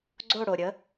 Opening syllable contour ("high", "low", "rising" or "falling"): falling